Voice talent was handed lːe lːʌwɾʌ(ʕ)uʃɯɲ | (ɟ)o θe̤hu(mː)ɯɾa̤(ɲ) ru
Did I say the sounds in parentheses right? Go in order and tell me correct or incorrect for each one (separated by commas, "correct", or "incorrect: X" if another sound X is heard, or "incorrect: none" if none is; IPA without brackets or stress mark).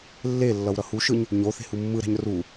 incorrect: h, incorrect: ɲ, correct, correct